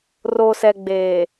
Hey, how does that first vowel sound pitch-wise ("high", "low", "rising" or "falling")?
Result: low